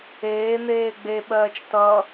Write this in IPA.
eːn̪eː ɡ͡beɓɜːt͡ʃ tʌ

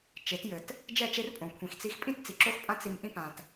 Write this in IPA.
t͡ʃe˨˦tjɘ˨t | d͡ʒɛ˦˨t͡ʃe˦rpʼõ˨ kʷʰĩ˨xt͡si˦x pʼĩ˦tt͡si˨ǁo˦xpʼã˦ t͡si˦m ʔĩ˦pã˨t

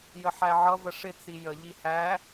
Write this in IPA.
jəħæʕʌ vəʂɪ t͡sijə ʎihæ

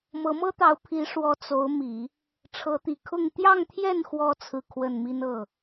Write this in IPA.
mɤ˧˥mɤ˥t̪ɑ˧˥ʊ̯ pʰi˧˥ʂwɔ˧˥ t͡so˧˥ʊ̯mi˨˩˦ | ʈ͡ʂʰɤ˧˥t̪i˨˩kʰʊ˥˧ŋ t̪jɑ˥˧ŋt̪ʰjɛ˥˩nxwɔ˧˥ t͡sʰɹ̩˥˧kʰwə˥˩nmi˥n ɤ˥˩

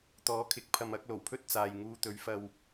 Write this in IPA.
t̪ɔː˨˥kʰɪ˨˥k̚pʰɐ˧mɐ˨˥k̚ lo˨˩wpʰɵ˥t̚t͡saː˨j ŋuː˧t̪ɵ˨˥ɥfɐ˧w

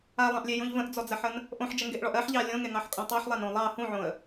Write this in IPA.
alˠɑ̃ʔlʲejũʎ və̃ʔd͡zɔd͡zɜħən | ʔõħd͡ʒəŋɡeʔɭɔʔ ɜħʎɑ lʲõŋeŋɑħkʼõ tˤɑħlˠanõ lˠɑ hũʕõə̯

